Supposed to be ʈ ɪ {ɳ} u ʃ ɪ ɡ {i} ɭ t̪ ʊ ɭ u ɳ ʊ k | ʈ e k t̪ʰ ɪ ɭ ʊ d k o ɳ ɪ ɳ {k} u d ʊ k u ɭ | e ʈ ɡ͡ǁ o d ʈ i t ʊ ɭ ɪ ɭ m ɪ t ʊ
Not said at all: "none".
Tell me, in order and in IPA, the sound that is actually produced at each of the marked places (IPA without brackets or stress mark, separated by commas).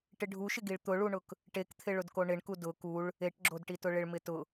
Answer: ɖʱ, i, k